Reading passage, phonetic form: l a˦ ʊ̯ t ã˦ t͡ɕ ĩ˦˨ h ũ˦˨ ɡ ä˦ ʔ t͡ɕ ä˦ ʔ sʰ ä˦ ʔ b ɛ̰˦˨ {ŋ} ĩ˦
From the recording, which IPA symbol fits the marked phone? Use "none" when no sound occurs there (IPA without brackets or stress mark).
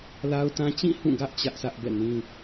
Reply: n